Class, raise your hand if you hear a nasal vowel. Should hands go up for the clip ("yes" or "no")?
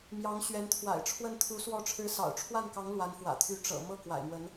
no